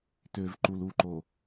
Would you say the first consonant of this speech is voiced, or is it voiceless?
voiceless